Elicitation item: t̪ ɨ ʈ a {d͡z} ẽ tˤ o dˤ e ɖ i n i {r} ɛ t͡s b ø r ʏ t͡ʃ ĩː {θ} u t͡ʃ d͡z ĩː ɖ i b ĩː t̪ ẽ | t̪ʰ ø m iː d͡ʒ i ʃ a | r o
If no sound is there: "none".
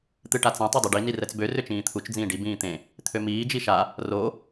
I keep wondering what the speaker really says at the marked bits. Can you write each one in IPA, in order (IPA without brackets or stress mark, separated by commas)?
t͡s, r, t̪ʰ